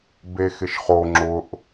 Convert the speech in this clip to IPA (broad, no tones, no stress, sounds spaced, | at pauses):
b e x ɪ ʃ χ o ŋ͡ǁ ʊ ʔ